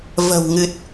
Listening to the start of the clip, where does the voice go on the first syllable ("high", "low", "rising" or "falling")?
low